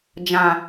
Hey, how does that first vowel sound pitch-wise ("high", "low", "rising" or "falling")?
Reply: low